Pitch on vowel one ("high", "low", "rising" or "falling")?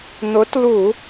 rising